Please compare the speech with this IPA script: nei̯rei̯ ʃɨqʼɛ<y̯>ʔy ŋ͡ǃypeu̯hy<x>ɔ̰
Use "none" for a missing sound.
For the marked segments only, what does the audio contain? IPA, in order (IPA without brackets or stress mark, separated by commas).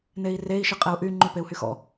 u̯, x